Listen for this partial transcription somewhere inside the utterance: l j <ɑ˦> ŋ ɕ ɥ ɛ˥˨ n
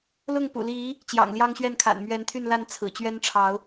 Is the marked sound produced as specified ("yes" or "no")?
yes